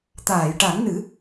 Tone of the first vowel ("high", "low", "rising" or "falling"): low